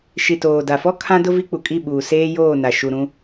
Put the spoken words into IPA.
ʃi˨toː˨da˨fɔ˦ kʰã˦dʊ˦ vi˦k͡pu˨kʼi˦˨ɓuː˨ seː˦joː˦˨na˨ ʃu˨ɾũ˦

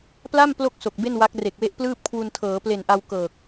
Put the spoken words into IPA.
pla˥˩m plo˥˩k̚ so˨˩k̚be˥˩nwa˦˥k̚ re˨˩k̚we˦˥ʔplɯː˥˩p̚ kʰwu˧ntʰɤː˩˦ple˨˩nʔa˧w kɤː˨˩k̚

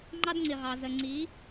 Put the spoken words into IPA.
ŋ͡ǃɑ˦dŋ͡ǀi˨ʁɑ˨ zə˨ŋ͡ǀi˨˦

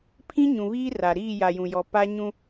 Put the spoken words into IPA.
pʰĩ˦ɲũ˨βiː˦ra˨ ɾiː˦˨ja˨jũ˨jɔ˨ pa˦ɲũ˦

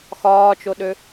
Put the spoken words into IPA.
xɒːt͡ʃoɗø

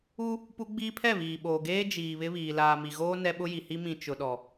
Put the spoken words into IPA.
u˦ | pu˦ ɡ͡biː˦pʰɛ˦˨ βiː˨ɓoː˨ ɡeː˦d͡ʒiː˨ βɪ˦βiː˨ laː˨mi˨ɣoː˦ nɛ˦ɓʊ˦ ji˨hi˦ mĩ˨ t͡ʃʊ˨ɗɔ˨

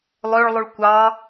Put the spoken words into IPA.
lˠøɭlˠuɭ kʷɑ

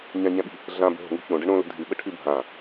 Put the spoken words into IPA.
ɲãɲæ̃ɓi̤ | ɮã bə̤ɦo̤ŋṳ çõɖə ɳõ lə̤dʱɨɓə ʈʰɨbʱã

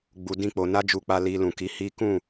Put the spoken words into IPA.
ɡ͡bu˧ dĩ˦k͡po˧ na˦d͡ʒu˧k͡pa˧ li˧ lũ˨ki˨˦hi˦ kũ˦˨

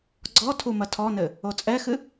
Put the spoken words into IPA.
ɡ͡ǀɔ tʰumɐtʰɔnɘ | ot͡sʼɛxɨ

